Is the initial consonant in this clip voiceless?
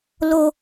no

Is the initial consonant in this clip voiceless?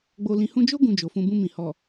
no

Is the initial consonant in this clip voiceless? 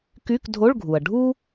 yes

